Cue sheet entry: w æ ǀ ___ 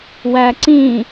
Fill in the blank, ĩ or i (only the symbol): ĩ